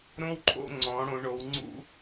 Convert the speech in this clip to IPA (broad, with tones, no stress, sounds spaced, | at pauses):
ɾ õ˥ w ǃʰ o̰˥˧ ŋ͡ǀ ɔ̃˩˧ ɽ õ˩˧ ɳ o˩˧ w ŋ͡ǀ ṵ˥